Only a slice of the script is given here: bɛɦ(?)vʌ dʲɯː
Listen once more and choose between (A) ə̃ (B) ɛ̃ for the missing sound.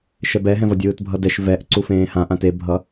B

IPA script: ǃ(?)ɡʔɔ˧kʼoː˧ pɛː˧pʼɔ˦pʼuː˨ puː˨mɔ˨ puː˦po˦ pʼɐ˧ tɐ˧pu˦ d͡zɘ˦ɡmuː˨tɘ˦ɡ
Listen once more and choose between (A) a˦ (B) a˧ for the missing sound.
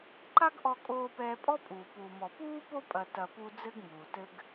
A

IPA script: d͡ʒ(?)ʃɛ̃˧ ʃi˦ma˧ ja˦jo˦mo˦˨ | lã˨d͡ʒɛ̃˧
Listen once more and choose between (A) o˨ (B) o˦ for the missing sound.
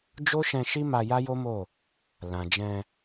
B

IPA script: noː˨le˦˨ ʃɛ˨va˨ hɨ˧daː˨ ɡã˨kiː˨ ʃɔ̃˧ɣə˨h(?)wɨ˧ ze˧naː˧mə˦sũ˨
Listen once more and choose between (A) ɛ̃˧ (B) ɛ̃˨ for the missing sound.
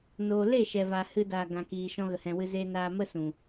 B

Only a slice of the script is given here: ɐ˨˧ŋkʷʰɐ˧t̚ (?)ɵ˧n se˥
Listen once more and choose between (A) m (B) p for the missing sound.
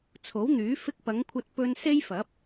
B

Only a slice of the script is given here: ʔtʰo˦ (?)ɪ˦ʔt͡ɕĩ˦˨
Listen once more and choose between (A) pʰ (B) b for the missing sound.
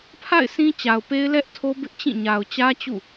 B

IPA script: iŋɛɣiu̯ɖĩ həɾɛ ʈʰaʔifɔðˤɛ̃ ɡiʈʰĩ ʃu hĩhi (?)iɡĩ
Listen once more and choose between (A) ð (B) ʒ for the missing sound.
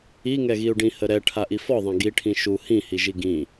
B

